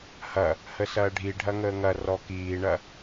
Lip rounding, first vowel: unrounded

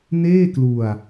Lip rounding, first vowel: unrounded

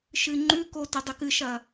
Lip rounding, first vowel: unrounded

